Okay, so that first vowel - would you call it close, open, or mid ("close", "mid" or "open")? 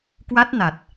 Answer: open